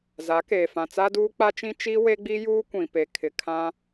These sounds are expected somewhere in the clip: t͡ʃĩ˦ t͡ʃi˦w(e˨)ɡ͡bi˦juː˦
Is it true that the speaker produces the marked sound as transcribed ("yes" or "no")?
no